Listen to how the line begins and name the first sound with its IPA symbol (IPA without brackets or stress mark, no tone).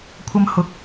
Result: kʷʰ